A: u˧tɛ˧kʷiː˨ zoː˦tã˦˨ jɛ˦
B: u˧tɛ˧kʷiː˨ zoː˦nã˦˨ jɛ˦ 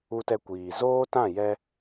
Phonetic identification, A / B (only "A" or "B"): A